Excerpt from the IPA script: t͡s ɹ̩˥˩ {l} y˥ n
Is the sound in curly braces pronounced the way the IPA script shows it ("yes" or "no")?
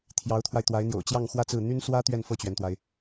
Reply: no